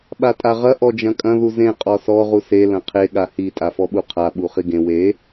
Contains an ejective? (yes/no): yes